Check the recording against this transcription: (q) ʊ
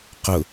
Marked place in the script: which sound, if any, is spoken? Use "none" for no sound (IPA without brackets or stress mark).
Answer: q